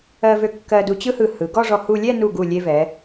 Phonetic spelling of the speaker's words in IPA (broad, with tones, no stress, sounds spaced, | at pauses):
ɜ˧ v ø˧ kː ɜ˧ d u˧ t͡ɕ ɯ˥ h ɯ˧˩ h ɯ˩˧ ɡ ɔ˥˧ ʐ ɔ˧ h u˧ lʲ ɛ˥˧ n u˧˩ ɡ u˧˩ lʲ e˧ v ɛ˩˧